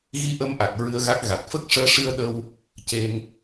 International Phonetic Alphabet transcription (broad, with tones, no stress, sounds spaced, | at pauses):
ɣ i˧ ʔ ə˧ m ʔ a˨˩ k̚ ɹ ɨ˧ ə̯ ɣ a˦˥ k̚ ɣ a˨˩ t̚ f ə˦˥ k̚ ʂ əː˧ ʂ ɨ˧ ə̯ ɗ ə˧ w | c e˧ ŋ